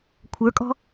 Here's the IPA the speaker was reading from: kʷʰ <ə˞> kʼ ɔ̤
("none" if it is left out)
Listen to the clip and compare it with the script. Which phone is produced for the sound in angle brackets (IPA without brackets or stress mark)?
ə˞